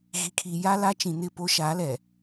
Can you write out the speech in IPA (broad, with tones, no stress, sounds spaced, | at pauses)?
ɣ i˨ kʰ iː˨ j a˦ l a˦ t͡ʃ ĩ˨ n ɪ˦˨ p o˦ ʃ aː˨˦ l ɛ˨